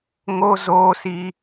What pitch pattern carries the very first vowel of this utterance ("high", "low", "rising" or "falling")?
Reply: high